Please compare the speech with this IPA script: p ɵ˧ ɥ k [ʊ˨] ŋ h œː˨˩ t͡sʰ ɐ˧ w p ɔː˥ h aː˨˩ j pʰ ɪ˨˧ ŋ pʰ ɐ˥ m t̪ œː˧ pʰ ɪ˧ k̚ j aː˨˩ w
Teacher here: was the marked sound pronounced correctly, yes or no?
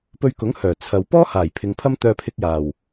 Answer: no